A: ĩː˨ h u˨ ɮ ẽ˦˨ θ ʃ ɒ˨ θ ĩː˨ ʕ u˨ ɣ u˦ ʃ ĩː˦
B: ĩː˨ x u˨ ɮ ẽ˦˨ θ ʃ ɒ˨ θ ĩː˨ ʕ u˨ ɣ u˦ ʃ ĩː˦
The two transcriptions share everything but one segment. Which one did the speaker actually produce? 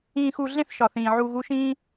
B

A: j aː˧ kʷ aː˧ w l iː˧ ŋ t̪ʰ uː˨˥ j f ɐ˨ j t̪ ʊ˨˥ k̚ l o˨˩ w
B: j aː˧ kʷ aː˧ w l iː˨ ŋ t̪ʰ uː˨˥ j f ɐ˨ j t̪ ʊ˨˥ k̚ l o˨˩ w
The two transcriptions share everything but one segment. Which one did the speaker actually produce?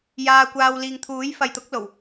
B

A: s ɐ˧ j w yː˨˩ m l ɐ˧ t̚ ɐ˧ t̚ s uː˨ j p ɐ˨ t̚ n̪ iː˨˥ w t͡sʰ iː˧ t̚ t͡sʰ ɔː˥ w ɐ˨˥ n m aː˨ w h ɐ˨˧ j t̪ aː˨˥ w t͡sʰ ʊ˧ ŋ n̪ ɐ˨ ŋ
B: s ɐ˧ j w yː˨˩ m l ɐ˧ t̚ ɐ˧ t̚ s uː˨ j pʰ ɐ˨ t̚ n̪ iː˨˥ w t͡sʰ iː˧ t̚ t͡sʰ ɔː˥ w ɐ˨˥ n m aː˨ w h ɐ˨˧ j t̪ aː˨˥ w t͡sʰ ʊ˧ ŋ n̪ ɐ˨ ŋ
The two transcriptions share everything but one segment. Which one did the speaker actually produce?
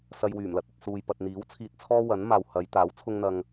A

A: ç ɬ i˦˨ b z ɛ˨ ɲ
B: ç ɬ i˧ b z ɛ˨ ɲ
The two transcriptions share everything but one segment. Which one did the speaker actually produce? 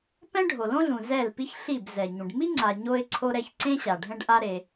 A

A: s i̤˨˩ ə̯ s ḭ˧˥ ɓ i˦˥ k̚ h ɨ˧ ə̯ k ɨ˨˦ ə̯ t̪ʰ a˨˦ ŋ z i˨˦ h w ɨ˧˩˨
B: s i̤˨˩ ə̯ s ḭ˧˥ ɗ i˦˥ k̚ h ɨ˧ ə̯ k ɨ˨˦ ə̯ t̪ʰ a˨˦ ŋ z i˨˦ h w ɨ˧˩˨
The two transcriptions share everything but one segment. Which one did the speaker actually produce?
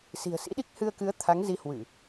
B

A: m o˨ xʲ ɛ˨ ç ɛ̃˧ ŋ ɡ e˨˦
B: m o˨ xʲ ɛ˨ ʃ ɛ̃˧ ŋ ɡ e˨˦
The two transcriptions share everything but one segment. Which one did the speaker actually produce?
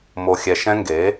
B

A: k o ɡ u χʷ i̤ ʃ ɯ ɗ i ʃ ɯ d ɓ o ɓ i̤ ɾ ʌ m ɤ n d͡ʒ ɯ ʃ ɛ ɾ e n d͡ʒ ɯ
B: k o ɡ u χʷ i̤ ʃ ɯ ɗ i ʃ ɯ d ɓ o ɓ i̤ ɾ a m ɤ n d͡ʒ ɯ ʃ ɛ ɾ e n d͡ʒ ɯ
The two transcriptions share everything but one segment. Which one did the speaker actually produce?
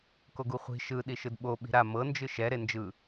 B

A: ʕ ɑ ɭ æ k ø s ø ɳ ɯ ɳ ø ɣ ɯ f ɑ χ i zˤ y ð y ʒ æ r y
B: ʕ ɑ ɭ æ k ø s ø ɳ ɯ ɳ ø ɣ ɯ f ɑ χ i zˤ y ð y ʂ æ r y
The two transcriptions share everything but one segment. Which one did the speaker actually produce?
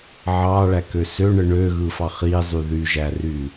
A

